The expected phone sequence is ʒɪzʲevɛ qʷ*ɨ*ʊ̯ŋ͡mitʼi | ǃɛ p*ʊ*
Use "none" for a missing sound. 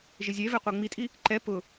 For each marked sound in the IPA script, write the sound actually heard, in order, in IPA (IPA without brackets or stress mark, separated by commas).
ɪ, ʊ